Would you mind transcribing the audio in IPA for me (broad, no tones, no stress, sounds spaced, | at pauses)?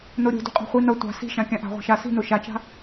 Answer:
n o ɾʲ o̤ d ṳ qʼ a̤ χʷ i n ʌ tʷ a̤ s i̤ ʃ ã kʲ ã ʔ a̤ ʁʷ a̤ ʃ a s i̤ n o ʃ a t͡ʃ a̤